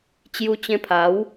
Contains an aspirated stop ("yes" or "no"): yes